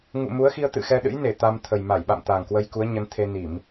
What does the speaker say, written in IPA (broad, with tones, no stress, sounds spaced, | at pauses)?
ŋ ṵ˧˨ m u˨˦ ə̯ x i˧ ə̯ t̪ ɨ̰˧˨ x ɛ˧ ɗ ɨ̰˧˥ j n e˧˩ t̪ a˧ m t̪ʰ ə˨˩ j m a˧˩ j ɓ a̰˧˨ m t̪ a˨˩ ŋ k w ə˧ j k u˨˦ ə̯ ɲ ə˨˦ n t̪ʰ e˧ n i˧˩˨ m